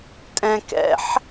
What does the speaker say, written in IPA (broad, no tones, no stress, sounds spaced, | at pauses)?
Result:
tʼ ɛ̃ k ɛ̰ ħ